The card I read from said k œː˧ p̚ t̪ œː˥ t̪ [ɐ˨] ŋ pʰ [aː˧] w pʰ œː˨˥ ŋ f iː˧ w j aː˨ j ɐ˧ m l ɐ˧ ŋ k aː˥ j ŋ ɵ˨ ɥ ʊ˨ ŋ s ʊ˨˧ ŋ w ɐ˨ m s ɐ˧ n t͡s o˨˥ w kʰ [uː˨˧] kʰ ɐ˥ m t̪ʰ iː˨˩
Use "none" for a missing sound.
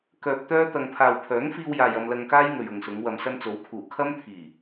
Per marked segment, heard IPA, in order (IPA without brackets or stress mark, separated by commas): ɐ˧, aː˨, uː˨˩